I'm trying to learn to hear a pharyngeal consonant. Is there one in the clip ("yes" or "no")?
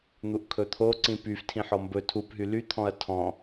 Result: yes